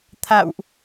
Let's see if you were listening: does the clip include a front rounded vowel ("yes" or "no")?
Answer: no